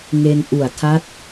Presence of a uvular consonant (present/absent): absent